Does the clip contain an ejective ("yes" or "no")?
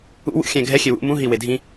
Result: no